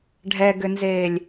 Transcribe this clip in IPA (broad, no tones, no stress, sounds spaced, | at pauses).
ɖʱ ɛ ɡ ʏ n z eː lʲ